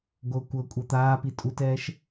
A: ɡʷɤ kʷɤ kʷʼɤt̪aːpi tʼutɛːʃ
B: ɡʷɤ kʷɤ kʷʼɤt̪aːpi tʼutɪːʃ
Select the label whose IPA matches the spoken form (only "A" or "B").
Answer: A